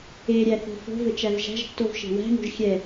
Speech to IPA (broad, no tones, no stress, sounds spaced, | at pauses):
e ɾʲ æ θ o̤ f o̤ v ɘ t͡ʃ æ v ʒ æ̤ ʒ tː o v ʃ e̤ w æ̤ ŋ o̤ ʒ xʲ ɛ